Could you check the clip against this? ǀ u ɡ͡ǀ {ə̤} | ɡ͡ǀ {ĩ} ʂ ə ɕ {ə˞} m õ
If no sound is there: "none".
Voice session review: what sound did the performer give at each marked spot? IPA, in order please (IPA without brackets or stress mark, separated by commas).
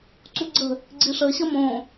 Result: ə̤, i, ə